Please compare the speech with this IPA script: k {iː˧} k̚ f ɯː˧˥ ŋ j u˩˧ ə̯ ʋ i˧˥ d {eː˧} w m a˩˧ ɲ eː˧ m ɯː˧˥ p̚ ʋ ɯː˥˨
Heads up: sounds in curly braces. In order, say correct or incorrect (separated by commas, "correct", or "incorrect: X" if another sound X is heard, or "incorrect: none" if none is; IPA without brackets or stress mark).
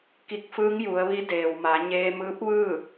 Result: incorrect: i˧, incorrect: eː˩